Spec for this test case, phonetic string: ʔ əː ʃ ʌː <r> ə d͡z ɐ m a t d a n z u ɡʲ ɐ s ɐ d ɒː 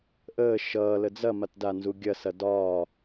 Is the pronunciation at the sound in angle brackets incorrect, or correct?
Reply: incorrect